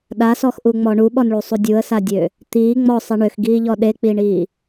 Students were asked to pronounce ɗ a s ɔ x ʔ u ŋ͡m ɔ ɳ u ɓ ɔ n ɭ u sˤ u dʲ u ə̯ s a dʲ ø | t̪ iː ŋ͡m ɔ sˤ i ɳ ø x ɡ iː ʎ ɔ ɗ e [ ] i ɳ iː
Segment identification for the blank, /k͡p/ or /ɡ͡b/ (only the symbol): k͡p